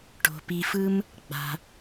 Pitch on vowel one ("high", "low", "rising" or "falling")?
low